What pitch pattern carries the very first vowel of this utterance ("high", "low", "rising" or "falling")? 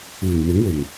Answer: low